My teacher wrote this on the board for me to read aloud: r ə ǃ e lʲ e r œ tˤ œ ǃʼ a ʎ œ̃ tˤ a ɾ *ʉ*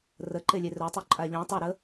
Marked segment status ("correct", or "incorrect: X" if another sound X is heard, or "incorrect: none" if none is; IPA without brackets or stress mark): incorrect: ə